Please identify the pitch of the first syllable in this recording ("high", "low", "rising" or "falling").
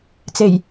low